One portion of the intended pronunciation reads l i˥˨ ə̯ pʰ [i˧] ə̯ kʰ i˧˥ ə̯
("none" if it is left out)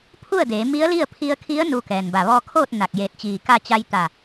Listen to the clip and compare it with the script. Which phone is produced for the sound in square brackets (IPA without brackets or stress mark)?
i˧